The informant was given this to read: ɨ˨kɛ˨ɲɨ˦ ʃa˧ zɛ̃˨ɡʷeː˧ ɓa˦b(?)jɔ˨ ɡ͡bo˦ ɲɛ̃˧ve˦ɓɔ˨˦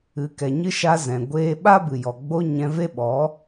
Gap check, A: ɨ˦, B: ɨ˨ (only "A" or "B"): B